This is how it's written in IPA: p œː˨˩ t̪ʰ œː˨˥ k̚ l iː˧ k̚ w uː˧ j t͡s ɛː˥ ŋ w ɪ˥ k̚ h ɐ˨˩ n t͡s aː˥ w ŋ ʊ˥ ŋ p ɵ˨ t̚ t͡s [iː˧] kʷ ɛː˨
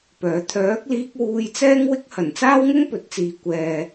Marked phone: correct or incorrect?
incorrect